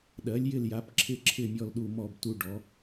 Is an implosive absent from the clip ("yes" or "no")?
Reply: no